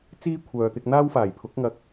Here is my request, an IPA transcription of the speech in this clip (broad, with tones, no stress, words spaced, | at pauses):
t͡siː˥kʷʰœː˨t̪ɪ˧k̚ n̪aː˥wfaː˨˩jpʰʊ˨˥k̚ ŋɐ˧k̚